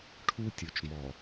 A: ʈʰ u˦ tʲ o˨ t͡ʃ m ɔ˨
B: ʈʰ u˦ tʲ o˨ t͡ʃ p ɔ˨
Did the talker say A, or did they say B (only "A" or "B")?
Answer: A